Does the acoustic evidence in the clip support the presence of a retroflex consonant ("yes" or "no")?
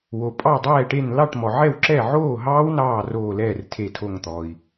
yes